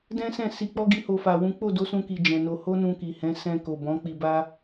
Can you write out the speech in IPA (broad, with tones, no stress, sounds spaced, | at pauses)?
d ɛ̃˦ s ɛ̃˦˨ s i˧ k͡p ɔ˦ ɡ i˦ h o˦ f a˧ w ũ˦ k͡p o˦˨ d o˨˦ s ũ˧ k i˨ d͡ʒ ɛ̃˨ n o˧ h o˦ n ũ˧ k i˨ h ɛ̃˨˦ s ɛ̃˧ k o˨ b ɔ̃˨˦ k͡p i˧ b a˦